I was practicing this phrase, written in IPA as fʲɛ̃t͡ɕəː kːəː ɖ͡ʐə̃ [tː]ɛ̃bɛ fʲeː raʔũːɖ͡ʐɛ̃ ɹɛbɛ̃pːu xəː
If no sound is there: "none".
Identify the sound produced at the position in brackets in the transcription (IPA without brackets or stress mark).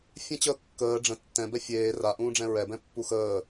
tː